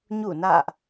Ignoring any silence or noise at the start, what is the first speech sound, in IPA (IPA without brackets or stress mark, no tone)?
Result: ɲ